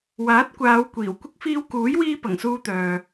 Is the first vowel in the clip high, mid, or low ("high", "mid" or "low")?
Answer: low